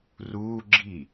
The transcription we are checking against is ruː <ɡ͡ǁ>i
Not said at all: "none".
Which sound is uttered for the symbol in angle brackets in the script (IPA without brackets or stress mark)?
ɡ͡ǁ